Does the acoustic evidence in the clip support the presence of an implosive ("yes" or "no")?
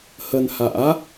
no